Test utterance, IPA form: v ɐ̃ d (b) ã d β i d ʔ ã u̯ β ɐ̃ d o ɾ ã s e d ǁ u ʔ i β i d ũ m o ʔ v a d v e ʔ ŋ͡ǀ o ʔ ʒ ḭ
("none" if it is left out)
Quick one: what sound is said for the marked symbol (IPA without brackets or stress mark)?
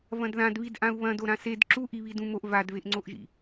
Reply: ð